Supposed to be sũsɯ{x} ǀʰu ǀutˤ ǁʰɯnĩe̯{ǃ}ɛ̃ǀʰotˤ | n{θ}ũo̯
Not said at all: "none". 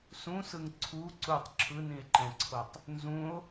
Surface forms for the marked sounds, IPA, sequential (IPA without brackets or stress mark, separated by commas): ŋ, ǃ, z